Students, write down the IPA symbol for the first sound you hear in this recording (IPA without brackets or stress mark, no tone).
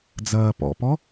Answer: d͡z